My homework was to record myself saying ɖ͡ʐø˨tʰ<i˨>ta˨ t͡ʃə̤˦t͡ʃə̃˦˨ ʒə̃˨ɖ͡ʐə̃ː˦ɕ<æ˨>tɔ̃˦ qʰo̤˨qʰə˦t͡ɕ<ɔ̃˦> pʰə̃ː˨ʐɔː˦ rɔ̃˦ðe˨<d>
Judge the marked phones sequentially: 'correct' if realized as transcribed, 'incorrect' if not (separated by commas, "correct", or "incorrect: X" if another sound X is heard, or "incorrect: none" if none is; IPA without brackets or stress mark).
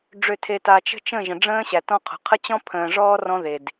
incorrect: e˨, correct, correct, correct